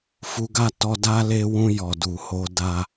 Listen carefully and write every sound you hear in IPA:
fu˧ɡa˦ tɔ˧da˦ le˧wũ˧ jɔ˨du˨ho˧ da˧

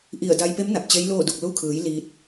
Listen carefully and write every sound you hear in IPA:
ʔi˧˩ə̯ da˧jpe˧˥m na˧˩p̚t͡ɕe˧˥jloː˥˨du˧˩k̚ lu˧kʰɯː˩˧j liː˧t̚

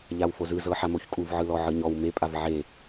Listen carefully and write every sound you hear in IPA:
ʎawfozɯzɤ ħamoçkʼuv ʕɯlɔʕɯɲɔw mepʼav ʕe

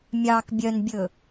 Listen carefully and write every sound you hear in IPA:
mʲɑk bʲœnbʲɵ

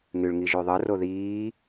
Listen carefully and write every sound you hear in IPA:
ŋyɭŋiʒyðˤɯ roðiː

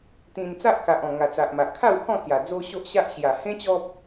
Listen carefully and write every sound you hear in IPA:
t̪ĩ˧n t͡sa˦ʔka˨ʔ ɔ̃˨˩ ŋa˨˩t͡sa˨ʔma˨ʔ kʰa˥˧whɔ̃˥˧ t͡sja˨˩ d͡zo˦ɕo˦ʔɕa˦ʔ ɕja˨˩hẽ˦ t͡ɕɔ˦p̚

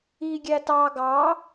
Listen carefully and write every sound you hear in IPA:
i ɡʲætɑ ɡɑ

